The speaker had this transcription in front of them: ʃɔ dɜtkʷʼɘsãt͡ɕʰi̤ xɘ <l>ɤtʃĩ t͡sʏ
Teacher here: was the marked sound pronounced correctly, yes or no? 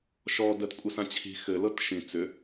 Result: yes